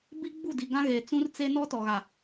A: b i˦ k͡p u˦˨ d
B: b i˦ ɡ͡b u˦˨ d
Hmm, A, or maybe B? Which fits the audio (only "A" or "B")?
B